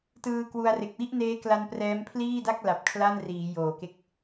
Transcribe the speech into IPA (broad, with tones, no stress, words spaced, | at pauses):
tɯː˧kwu˧a̯re˨˩k̚ wi˥˩ʔneː˦˥kla˧n prɛː˦˥mpʰliː˥˩da˥˩k̚ la˨˩p̚kʰla˥˩nriː˩˦ joː˨˩ke˥˩k̚